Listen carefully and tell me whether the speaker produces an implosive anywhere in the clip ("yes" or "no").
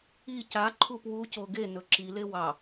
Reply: no